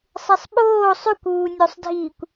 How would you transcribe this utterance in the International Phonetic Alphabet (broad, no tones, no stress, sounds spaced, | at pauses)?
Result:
sˤ e sˤ ɓ oː sˤ ʉ kʷ uː nʲ o sˤ dʱ iː kʷ